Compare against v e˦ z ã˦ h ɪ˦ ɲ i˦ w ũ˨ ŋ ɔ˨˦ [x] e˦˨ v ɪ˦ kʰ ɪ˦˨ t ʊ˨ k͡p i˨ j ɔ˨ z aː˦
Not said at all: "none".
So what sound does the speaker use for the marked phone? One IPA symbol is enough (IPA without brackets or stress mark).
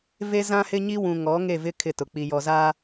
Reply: ŋ